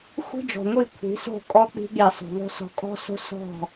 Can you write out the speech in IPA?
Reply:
xʷ i̤˦ d͡ʒ ɔ̤˨ ŋʷ i˦˨ kʷʰ i̤˨˦ s o̤˦˨ kʼ ɔ˦ k͡p i̤˧ ɠ i˨ sˤ o̤˨ ðˤ o̤˦ s ɔ̤˧ kʼ ɔ̤˦ s o̤˦ s ɔ̤˦˨

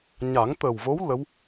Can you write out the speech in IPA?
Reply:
ɲ a˨˩˦ ŋ t̪ ə˨˩ w v o˧˥ w l ə˧˥ w

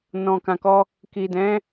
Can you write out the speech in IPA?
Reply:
n ɔ̃˨ k ã˨ k ɔ˧ | k i˨ d ɛ̃˨˦

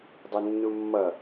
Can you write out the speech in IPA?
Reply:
dˤ u nː u mː ʌ

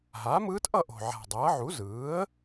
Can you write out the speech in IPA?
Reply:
ɦ aː˩˥ m ɯː˧˥ t ʔ ʌ˥˨ ʔ o̤˨˩ ʕ a̤˨˩ dˤ ʌː˩˥ ʕ u˩˥ z ɯː˩˥ ə̯

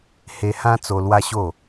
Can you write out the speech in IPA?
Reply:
h e˧ h ã˦ t͡s o˧ l w a˦ ɕ o˥˧

